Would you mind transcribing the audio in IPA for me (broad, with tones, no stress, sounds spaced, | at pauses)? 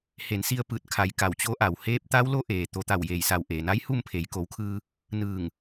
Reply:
h e˩˧ n s i˧ ə̯ p ɯː˧˩ t̚ kʰ a˩˧ j k a˧˩ w t͡ɕ o˧˥ ʔ a˩ w h eː˧˥ p̚ t̪ a˧˥ w l o˧˥ ʔ eː˩ t̪ o˩˧ t̪ a˧˩ w j eː˧˩ j s a˧˩ w ʔ eː˩ n a˧˥ j h u˥˨ m pʰ e˩˧ j k o˩˧ w kʰ ɯː˧ | n ɯː˧˩ ŋ